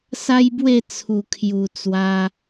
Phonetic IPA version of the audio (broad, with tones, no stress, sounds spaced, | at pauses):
s a˦ j b w e˥˧ t͡sʰ u˨˩ kʰ j u˨˩ t͡s w a˧